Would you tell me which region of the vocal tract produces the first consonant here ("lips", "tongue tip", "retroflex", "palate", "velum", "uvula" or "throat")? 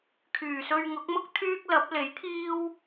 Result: velum